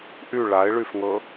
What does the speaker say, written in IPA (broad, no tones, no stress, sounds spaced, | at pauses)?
ʔ y ɭ a ɪ̯ ɭ y f ŋ ɤ